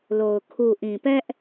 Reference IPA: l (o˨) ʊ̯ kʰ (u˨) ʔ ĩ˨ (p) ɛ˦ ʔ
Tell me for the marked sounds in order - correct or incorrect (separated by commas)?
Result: correct, correct, correct